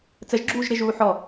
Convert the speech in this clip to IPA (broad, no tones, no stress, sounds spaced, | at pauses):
t͡s ə ʒ ɡ͡ǁ uː ʒ ɾ ɪ ʒ uː ħ ɔ